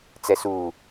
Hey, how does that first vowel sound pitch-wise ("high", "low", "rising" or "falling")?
low